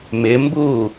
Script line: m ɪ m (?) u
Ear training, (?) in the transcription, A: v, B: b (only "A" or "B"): B